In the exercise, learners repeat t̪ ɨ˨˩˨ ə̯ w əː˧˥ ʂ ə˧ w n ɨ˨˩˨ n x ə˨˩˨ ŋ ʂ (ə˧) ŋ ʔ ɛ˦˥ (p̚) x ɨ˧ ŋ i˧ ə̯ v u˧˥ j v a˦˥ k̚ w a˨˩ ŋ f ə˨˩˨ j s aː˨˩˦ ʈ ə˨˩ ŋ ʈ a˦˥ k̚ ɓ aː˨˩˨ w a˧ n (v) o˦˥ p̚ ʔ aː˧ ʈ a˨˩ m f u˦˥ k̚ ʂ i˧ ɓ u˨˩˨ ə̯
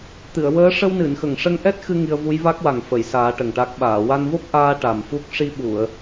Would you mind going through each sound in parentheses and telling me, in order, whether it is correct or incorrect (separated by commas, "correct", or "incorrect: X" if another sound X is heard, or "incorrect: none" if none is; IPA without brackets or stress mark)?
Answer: correct, incorrect: t̚, correct